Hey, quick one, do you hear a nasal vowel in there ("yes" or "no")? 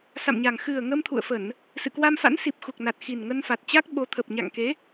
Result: no